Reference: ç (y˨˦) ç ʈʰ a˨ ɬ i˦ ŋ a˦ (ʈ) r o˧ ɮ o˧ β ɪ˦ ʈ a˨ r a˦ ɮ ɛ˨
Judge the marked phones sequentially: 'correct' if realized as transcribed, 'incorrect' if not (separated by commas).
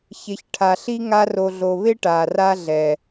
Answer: incorrect, incorrect